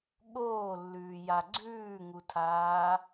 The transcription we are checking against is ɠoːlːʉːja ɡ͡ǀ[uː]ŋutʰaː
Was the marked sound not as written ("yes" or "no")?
yes